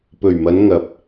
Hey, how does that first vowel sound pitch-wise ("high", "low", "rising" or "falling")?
low